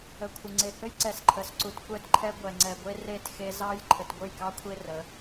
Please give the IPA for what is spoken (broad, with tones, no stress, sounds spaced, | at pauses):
ə˨ kʷʰ ə˨ ŋ͡ǀ e˨ h ɘ˦ j ǀ ɛ˨ s ǃʰ ə˨ s ǀ u˨ t kʷ ɛ˦ t ǃʰ ɛ˦ ɡʷ ɛ˨ ŋ͡ǀ ɛ˨ ɡʷ e˦ r e˦˨ t x e˦ z ɑ˦ j ǃʰ ɘ˨ t ɡʷ ɘ˦˨ j k ɑ˦ kʷʰ e˦ r ə˨˦